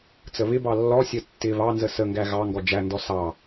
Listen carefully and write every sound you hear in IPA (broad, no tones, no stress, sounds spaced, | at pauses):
t͡s ə β ɪ b ɑ lː ɔ sʲ ə tː ɪ β ɑ n z ə s ə ŋ ɡ æ ɣ ɑ ŋ ɡ ɔ d͡ʒ æ n d ɔ s ɑ